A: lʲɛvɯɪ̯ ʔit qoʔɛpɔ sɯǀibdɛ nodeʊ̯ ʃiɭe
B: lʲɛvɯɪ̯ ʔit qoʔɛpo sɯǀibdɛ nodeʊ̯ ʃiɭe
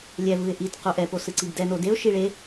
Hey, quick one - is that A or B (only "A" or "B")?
B